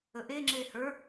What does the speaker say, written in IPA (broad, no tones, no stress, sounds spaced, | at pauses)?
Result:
ə ʔ e ŋ͡ǁ e h ə˞